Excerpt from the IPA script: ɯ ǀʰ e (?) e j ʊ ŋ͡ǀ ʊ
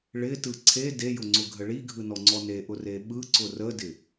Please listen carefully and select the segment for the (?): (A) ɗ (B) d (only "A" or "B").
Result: B